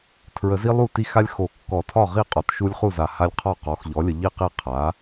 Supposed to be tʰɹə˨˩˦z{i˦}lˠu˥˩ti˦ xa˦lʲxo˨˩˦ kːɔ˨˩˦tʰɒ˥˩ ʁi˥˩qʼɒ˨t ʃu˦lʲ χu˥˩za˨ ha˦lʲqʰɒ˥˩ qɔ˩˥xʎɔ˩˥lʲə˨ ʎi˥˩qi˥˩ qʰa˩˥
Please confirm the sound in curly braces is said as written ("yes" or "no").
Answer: yes